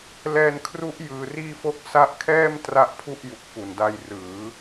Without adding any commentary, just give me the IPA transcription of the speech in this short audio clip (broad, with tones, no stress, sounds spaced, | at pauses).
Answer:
l ɛː˧ n kʰ r u˦˥ ʔ j ɯː˧ r iː˥˩ f o˥˩ k̚ s a˦˥ ʔ kʰ ɛː˥˩ m t r a˦˥ ʔ pʰ u˥˩ ʔ j u˨˩ k̚ f u˨˩ n d a˧ j r ɯː˩˦